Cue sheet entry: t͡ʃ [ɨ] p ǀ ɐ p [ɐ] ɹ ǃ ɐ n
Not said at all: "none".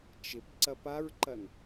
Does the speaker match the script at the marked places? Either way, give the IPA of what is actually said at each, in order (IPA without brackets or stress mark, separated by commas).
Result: ɪ, a